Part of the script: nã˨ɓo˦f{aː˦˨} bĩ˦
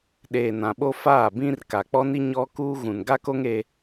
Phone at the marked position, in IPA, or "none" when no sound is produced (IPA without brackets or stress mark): aː˦˨